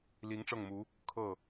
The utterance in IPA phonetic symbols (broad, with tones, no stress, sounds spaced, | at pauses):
l i˧˥ ŋ ʈ͡ʂ ɤ˥˩ ŋ m u˧˥ | kʰ ɤ˥˩